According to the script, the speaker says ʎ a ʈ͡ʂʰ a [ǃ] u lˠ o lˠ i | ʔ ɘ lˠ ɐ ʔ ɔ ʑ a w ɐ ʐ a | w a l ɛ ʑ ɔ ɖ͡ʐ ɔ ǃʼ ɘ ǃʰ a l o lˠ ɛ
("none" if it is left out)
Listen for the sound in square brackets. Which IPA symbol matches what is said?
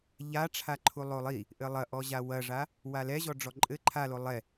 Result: ǃʰ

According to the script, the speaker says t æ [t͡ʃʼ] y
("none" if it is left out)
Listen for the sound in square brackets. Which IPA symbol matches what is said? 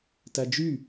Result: d͡ʒ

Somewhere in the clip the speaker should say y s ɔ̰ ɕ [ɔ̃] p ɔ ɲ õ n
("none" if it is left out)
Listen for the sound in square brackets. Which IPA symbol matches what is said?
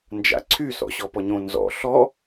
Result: ɔ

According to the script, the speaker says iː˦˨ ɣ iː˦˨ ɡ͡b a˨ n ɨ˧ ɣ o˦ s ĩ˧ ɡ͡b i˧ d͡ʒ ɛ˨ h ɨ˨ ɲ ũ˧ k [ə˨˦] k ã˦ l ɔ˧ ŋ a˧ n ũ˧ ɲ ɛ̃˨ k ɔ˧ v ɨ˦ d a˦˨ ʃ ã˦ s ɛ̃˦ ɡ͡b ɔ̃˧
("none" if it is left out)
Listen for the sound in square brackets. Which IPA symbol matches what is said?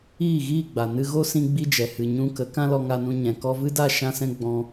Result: ə˨˦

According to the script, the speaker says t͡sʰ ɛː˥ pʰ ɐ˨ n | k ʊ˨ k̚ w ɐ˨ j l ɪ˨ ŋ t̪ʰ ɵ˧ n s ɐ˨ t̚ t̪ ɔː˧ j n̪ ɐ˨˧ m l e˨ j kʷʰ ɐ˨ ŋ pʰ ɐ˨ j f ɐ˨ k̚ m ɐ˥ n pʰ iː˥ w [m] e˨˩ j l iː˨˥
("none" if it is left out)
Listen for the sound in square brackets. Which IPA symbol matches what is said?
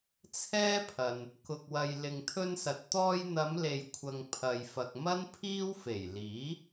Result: f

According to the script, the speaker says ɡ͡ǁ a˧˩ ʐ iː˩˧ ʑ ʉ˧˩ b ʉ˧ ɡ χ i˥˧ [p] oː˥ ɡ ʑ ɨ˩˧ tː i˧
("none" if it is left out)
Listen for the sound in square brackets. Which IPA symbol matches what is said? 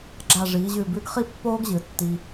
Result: pː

